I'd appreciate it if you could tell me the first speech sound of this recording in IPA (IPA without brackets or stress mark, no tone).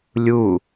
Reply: lʲ